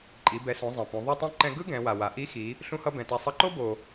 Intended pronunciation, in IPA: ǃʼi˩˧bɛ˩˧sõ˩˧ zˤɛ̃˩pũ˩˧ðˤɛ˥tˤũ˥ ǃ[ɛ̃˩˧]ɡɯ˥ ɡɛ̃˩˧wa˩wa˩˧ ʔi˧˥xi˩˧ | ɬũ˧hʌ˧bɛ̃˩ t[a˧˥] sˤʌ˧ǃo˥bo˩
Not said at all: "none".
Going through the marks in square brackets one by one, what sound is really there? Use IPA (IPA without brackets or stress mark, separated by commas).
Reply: ɛ̃˧, a˧